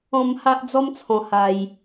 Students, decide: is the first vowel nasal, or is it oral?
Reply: nasal